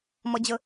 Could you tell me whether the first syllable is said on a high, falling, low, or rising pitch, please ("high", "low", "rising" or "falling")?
high